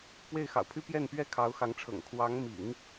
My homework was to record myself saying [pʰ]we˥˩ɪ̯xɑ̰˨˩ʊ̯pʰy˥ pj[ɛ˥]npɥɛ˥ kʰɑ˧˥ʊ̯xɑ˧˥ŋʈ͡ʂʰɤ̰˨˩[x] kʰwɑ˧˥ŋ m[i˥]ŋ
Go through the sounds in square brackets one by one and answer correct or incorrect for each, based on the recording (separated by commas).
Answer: incorrect, incorrect, incorrect, incorrect